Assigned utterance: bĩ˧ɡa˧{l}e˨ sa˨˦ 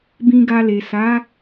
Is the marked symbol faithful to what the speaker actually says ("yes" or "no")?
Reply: yes